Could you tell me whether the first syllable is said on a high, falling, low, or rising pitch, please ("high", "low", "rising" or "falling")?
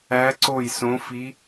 rising